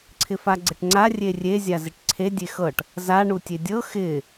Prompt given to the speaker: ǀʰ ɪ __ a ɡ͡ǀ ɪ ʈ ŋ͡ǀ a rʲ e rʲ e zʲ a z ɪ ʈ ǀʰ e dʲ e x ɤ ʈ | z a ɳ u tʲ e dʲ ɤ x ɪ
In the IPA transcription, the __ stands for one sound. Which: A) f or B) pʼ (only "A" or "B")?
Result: A